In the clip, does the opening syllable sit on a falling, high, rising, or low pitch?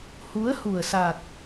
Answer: rising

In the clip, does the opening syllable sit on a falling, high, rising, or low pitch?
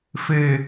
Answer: low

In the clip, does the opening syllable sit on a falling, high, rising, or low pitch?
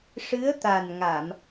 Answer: rising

